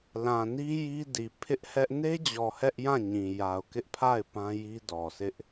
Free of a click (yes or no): yes